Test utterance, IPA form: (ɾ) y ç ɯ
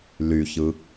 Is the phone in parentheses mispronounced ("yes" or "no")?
yes